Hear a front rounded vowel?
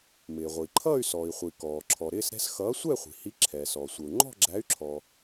yes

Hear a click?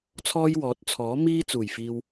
no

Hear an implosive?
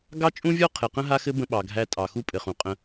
yes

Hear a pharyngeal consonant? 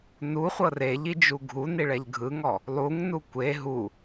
no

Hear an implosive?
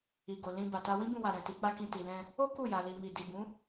no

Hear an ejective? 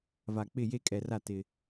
yes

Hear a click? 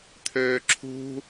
yes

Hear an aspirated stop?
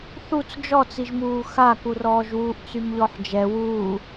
no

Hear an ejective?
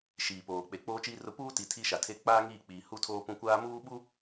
no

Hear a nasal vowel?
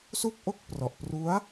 no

